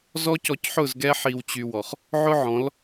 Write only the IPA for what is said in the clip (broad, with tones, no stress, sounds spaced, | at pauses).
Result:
z ɔ˦ c ɔ˧ c ħ ʊ˦˨ z ɡ ɛ˦ ħ i˧ w t͡ɕ y˧ w ɔ˨ χ | ʕ ʊ˦ ʕ ɔ̃˨˦ l